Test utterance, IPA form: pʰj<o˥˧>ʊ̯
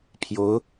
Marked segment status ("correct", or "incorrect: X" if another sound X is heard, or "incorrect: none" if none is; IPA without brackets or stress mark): incorrect: o˧˥